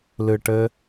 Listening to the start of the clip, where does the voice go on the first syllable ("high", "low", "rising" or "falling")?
low